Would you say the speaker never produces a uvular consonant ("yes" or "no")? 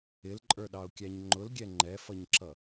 yes